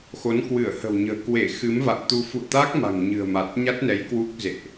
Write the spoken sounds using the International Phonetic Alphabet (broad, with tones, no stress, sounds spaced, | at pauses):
x o˨˦ n k w ɨ˧˩ ə̯ h ə̤˨˩ w ɲ ə̤ː˨˩ k w e˧˩ x ɨ˨˦ m v a̰˧˨ ŋ t̪ u˧ f ṵ˧˨ ə̯ t̪ a˦˥ k̚ m a̤˨˩ ŋ ɲ ɨ̤˨˩ ə̯ m a˨˩ t̚ ɲ a˦˥ t̚ n ɛ˨˦ j k w u˦˥ k̚ z ḛ˧˨ ʔ